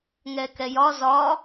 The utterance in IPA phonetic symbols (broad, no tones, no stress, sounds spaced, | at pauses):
ŋ ɛ k ɛ j ɒ z ɒ